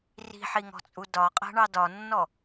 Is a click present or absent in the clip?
absent